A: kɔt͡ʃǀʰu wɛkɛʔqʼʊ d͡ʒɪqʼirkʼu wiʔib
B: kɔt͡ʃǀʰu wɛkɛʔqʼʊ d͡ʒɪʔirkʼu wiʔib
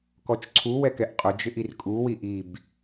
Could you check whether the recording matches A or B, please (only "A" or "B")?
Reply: B